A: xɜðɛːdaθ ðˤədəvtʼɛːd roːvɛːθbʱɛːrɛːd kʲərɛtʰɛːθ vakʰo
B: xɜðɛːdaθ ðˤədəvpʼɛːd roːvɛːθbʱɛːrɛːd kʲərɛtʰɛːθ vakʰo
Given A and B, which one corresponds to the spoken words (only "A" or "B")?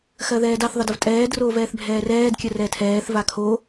A